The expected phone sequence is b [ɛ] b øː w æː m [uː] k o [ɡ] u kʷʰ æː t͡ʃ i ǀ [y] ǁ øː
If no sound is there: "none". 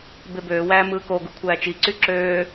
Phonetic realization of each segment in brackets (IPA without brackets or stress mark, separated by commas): e, ɯː, ɡ, y